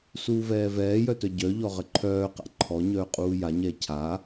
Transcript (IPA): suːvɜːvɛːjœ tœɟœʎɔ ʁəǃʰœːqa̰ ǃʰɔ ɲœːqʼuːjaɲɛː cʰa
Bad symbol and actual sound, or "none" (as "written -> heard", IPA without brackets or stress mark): ɜː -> ɛː